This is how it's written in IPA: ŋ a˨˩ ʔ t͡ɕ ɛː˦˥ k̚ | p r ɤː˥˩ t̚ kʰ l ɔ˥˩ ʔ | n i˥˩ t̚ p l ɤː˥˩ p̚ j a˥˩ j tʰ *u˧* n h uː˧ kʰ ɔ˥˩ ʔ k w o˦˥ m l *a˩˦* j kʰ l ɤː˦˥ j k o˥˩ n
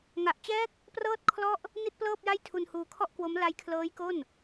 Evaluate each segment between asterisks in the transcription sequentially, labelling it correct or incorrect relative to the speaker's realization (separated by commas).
correct, incorrect